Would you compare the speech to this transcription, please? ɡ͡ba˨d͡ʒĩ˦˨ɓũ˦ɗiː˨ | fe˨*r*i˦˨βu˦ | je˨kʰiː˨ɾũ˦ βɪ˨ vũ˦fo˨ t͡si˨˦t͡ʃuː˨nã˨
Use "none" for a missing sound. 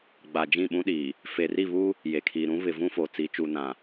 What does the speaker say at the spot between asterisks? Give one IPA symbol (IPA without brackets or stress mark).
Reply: r